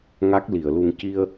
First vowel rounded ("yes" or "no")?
no